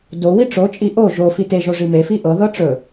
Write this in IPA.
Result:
do wiʈ͡ʂot͡ʃʼi ʔo ʒo fiteʒo ʐimefi ʔɤðɤ ʈ͡ʂɵ

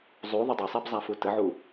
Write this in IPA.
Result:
zˤu ðˤʏdˤʏsˤib zˤafutəʕu

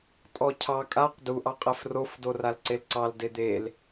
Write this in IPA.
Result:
tʼɔcʰɑ kʼaq du ʔɑqʼɛfrof doralǀelǀɑl ded̪el

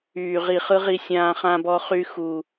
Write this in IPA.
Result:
yː˨ʁi˨χɯ˧ʁi˧ sʲãː˧χã˧bɔ˧χy˧ xu˨

